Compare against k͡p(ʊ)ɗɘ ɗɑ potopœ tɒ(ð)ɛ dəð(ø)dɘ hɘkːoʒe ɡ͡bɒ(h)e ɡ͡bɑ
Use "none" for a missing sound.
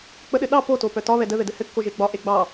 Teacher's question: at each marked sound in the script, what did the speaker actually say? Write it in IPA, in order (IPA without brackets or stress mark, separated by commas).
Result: ə, β, ɘ, ʔ